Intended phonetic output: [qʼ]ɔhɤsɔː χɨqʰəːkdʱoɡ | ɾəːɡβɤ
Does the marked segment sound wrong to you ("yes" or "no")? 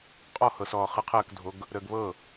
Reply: no